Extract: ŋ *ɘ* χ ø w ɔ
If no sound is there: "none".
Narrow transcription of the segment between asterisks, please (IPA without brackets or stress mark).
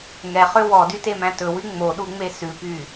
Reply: ɛ